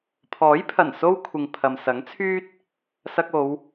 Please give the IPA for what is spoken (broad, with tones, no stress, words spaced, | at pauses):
pʰɔː˨˥jpʰɐ˨˩n so˥wkʷʰɪ˨ŋ pʰɐ˨msɐ˨˥ŋt͡sʰyː˥t̚ | sɐ˧k̚o˨˧w